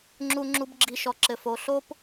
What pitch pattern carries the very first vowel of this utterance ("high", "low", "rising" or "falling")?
low